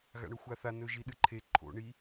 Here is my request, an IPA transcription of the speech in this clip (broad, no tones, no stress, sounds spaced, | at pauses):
ɣ a̰ ɳ ɵ xʷ a θ a n ɵ ʒ i ɗ ɨ ǃʰ e ǃʰ o̰ ɳ i